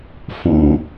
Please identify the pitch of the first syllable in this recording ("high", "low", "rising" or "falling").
low